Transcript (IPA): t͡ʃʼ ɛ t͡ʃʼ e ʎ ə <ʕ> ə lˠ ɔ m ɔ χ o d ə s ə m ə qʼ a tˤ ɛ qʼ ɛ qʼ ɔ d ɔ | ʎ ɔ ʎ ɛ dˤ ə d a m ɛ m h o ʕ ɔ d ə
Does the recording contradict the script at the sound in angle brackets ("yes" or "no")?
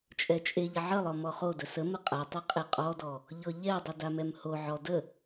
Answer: no